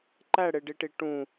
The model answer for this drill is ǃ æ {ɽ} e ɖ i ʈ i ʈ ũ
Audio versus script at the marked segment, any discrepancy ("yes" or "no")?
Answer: no